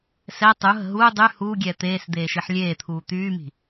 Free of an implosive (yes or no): yes